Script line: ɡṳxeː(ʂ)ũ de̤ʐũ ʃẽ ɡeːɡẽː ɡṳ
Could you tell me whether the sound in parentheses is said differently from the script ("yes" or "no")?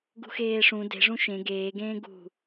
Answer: no